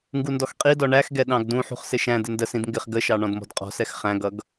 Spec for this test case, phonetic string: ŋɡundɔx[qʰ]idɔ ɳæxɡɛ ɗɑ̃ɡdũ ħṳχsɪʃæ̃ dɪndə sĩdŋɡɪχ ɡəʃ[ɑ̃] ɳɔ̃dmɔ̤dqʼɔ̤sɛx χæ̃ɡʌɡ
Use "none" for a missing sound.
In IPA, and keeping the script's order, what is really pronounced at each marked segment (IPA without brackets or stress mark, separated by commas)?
qʼ, ɑ